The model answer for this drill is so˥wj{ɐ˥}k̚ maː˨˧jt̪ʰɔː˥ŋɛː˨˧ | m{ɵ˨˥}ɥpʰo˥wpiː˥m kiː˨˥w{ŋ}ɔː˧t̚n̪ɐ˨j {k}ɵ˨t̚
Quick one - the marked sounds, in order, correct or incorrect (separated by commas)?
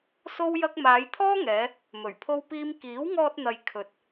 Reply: correct, incorrect, correct, incorrect